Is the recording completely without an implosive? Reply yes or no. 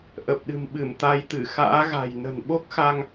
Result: no